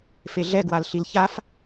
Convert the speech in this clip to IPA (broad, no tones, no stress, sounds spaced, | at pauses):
f e ɮ ɛ ɡ w a l ɬ i l ç a f